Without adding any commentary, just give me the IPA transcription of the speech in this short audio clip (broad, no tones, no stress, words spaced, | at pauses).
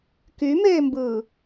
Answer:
kymeːmbɯː